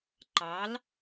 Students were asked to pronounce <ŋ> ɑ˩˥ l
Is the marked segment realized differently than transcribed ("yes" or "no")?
yes